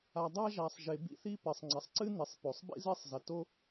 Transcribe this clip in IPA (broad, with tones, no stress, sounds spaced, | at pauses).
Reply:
a˩ dˤ a˥ ʒ a˩ sˤ ʒ e˩ b ḭ˥ θ i˥ p ɘ˩ sˤ ŋ͡ǀ ɐ˩ sˤ ǀ ɨ˥ n i˩ sˤ p o˩ sˤ b ḭ˥ z e˥ sˤ z ɐ˩ t o˥